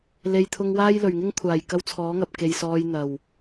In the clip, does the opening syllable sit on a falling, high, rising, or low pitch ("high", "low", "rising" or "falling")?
low